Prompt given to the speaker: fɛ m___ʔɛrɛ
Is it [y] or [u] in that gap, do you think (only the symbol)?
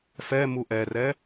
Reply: u